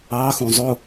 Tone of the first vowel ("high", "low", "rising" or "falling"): rising